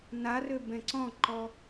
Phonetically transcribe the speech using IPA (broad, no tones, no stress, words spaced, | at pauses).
narø bɛ̃ǀɔ̃ǃɔ